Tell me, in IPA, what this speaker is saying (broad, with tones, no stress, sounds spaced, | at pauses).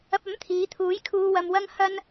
ɐ˨ p̚ ɐ˨˥ m t̪ʰ iː˨˧ t̪ʰ uː˨˥ j kʰ uː˨ w ɐ˨ m w ɐ˧ ŋ h ɐ˧ n